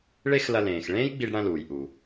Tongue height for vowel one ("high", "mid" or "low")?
mid